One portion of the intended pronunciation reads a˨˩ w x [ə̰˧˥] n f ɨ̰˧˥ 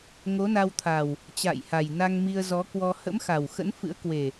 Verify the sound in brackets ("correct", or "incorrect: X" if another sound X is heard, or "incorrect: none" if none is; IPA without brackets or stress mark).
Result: correct